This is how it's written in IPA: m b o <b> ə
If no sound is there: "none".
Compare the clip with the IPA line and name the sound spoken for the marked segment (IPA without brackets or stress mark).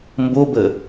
b